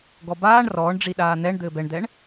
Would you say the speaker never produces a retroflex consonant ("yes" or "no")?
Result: no